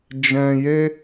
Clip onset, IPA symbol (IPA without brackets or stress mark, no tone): d͡ʒ